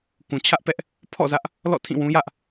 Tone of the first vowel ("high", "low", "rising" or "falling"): low